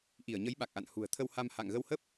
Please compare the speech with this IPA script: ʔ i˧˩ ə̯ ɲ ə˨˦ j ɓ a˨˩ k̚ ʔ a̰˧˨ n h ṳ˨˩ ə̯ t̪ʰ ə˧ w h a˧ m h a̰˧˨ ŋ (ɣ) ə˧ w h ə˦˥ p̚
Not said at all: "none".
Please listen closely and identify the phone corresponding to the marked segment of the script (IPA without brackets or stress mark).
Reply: ɣ